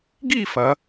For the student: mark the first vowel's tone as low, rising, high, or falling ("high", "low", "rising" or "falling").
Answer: falling